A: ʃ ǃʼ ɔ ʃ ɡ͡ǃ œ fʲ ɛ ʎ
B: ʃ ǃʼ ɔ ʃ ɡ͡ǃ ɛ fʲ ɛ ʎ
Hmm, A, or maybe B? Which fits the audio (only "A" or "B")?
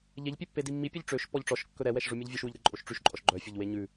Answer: A